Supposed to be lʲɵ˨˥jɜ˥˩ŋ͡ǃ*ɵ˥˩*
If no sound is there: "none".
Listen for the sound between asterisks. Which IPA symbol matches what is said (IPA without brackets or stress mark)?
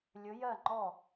ɔ˥˩